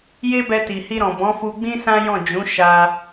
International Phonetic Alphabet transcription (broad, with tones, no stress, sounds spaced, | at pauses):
j e˦ b ɛ˧ t i˨ h i˧ ɾ ɔ̃˨ b ɔ̃˨˦ f u˧ ɡ͡b ĩ˦ s ã˦ j ɔ̃˦˨ d͡ʒ ũ˨˦ ʃ a˧